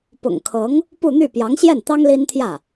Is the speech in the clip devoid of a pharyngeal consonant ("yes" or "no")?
yes